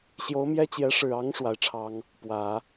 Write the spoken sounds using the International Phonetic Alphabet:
ɕjo˧˥ʊ̯mjɛ˥t͡ɕjɛ˧˥ ʂɻ̩˨˩ɑ˧˥ŋ ʂwa˧˥ɪ̯ʈ͡ʂʰɑ˥ŋ | pwä˨˩˦

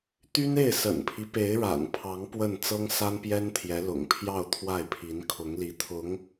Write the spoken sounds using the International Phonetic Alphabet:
t̪y˥ne˥˩ɪ̯ sə̰˨˩npʰi˦ pe˧˥ɪ̯ɻa̰˨˩npʰɑ˧˥ŋ pwə˥˩n t͡sɤ˥ŋsa˥npjɛ˥nt̪ʰjɛ˧˥ lʊ̰˨˩ŋpʰjɑ˥˧ʊ̯ t̪ʰwa˥˩ɪ̯pʰi˧˥nkʰʊ˧˥ŋli˧˥ t̪ʰʊ˧˥ŋ

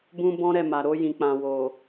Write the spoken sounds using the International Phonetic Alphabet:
bũ˦bɔ̃˦ɾɛ˦˨ ma˨ɾo˧jĩ˨k͡pã˨ wo˨

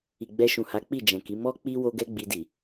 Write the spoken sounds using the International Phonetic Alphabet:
i˨ɡ͡bɛ˧ʃũ˨ha˨˦ k͡pi˦˨d͡ʒɛ̃˨ki˨˦ mɔ˦k͡pi˦ wo˦ɡɛ˦ɡ͡bi˧di˨

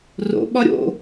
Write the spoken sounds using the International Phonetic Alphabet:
ro̰ ɓɒɾʲo̰

